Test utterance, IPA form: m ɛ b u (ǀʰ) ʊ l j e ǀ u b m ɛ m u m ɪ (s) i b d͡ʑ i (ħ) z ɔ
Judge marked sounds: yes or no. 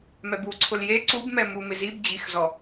yes, no, no

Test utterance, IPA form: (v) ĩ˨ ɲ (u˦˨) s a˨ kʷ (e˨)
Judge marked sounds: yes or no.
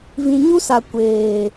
yes, no, no

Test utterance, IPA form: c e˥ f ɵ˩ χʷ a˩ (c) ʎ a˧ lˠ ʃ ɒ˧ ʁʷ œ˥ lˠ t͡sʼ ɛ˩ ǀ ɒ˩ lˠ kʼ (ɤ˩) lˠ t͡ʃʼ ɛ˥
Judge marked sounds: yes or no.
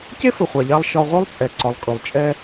no, no

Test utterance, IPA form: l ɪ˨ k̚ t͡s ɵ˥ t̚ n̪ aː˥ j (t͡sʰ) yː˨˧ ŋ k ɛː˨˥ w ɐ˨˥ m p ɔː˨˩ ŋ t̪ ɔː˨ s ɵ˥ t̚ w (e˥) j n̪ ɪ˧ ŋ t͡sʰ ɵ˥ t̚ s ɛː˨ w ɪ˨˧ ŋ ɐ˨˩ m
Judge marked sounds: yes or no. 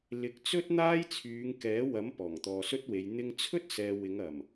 yes, no

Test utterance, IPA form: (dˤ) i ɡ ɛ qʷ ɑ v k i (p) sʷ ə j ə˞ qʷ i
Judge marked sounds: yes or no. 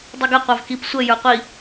yes, yes

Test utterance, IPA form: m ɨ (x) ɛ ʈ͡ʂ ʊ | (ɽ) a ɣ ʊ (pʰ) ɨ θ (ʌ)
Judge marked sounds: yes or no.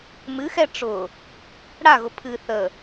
yes, yes, yes, no

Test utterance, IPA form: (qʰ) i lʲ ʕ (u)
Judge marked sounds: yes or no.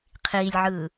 yes, no

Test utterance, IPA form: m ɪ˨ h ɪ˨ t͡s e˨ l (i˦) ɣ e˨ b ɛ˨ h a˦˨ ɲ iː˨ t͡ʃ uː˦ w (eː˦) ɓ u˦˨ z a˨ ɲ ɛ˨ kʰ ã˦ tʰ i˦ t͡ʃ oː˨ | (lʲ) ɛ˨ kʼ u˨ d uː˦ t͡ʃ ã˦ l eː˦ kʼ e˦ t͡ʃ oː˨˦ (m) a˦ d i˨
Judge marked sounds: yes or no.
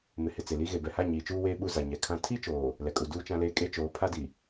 yes, yes, no, no

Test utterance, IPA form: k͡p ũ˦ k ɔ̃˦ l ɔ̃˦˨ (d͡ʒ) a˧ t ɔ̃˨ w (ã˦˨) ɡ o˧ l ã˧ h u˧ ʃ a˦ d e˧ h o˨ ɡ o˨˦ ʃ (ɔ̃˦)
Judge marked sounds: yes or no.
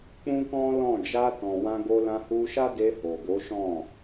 yes, no, no

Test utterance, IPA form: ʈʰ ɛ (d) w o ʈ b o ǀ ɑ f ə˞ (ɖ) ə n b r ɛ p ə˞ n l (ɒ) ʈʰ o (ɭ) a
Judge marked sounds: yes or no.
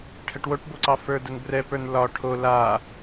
no, no, yes, no

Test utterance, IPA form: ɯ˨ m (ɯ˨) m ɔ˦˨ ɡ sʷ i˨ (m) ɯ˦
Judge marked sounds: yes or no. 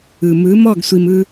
no, yes

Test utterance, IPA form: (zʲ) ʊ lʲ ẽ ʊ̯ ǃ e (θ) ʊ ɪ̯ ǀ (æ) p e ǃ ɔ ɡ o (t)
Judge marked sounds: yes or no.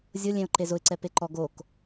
yes, no, no, no

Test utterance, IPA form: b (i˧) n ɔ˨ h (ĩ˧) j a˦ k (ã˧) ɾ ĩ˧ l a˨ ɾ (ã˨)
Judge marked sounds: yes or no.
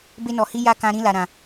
no, no, yes, yes

